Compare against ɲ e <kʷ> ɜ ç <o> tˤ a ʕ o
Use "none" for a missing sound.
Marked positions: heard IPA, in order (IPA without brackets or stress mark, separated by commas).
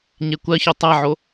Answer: kʷ, o